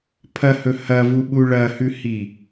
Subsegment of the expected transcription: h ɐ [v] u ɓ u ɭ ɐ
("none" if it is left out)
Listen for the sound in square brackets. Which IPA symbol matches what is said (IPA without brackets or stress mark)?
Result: v